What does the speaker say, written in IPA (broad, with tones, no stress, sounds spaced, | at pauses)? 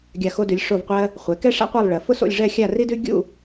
ɡʲ a˧˩ x o˧ d ʉ˩˧ lʲ ʂ o˧˩ v qʷ ɜ˧ | χʷ ɛ˩˧ k ɛ˥ ʂ a̰˥ qʷ ɜ˥˧ lˠ ɭ ɜ˩˧ f ʊ˥ s o̰˥˧ lʲ ʐ ɛ˥˧ xʲ a˥˧ r i˥ d ʉ˥ ɡʲ ṵ˥˧